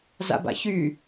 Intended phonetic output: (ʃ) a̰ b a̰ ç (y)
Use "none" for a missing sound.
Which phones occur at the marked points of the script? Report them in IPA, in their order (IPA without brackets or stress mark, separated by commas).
z, y